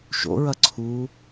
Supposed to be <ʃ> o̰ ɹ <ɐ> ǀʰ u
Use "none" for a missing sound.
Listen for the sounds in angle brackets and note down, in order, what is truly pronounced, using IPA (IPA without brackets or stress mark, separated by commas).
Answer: ʃ, ɐ